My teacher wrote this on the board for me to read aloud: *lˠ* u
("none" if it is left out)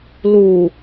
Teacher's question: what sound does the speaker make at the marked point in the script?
l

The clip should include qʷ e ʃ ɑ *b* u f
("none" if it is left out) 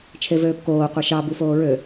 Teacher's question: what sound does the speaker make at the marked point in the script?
b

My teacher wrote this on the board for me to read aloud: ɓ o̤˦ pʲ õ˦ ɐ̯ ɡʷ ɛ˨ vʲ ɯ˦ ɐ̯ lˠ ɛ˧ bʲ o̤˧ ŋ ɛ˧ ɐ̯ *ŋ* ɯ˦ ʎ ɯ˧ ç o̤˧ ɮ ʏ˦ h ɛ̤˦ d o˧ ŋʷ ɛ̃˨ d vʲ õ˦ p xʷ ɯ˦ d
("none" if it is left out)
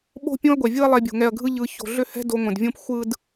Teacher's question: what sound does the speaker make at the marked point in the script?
ɡʱ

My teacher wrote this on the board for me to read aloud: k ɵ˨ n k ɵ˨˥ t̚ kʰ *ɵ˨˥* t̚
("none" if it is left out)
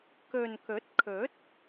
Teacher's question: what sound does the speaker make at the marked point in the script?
ɵ˨˥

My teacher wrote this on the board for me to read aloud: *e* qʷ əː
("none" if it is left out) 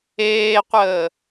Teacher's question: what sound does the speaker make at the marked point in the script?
eː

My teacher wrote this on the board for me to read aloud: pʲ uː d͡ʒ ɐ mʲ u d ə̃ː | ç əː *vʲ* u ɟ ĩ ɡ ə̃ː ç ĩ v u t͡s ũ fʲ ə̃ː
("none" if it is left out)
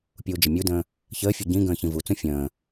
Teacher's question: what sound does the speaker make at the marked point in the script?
fʲ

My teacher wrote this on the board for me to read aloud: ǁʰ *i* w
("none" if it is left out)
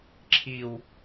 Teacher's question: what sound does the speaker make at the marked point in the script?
i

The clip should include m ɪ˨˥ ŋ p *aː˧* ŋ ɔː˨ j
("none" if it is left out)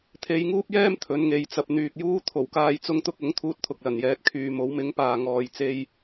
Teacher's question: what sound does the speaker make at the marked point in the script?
aː˨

